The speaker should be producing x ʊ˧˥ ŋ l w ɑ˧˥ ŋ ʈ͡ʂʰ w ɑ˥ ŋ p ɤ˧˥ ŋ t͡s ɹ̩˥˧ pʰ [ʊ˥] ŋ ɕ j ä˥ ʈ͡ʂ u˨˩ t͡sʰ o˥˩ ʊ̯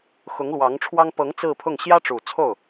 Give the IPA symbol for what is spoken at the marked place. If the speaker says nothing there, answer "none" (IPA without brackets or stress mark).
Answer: ʊ˥˩